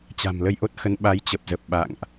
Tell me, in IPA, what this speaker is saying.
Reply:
t͡ɕ a̤˨˩ m l ə˧ j ʔ o˦˥ t̚ x ə˨˦ n ɓ a˨˦ j t͡ɕ ə˨˩ p̚ z ə˨˩ p̚ ɓ a̰˧˨ ŋ ʔ

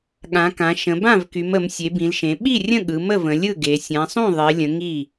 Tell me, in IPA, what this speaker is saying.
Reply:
ɠ ã˩˧ k ã˩˧ ʃ ə̃˩˧ b ã˥˩ v k y˩˧ m ə˩˧ m sʲ e˩˧ b ĩ˩˧ l ʃ ẽ˩˧ ɓ i˥˩ rʲ ə̃˥˩ ɠ ɯ˩˧ m ə˥˩ v ə̃˩˧ lʲ ɯ˥˩ ɡ e˩˧ sʲ ã˩˧ sˤ ũ˥˩ ðˤ e˩˧ lʲ ə̃˩˧ ŋ i˥˩

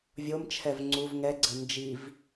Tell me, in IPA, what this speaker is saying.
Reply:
vʲ o m t͡ʃʰ ɛ v ŋ͡ǀ u v ŋ ɛ ɡ͡ǀ ə n d͡ʒ i v

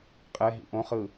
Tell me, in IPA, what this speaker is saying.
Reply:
qʼ ɛ ɦ ḭ ʔ õ χ ɯ

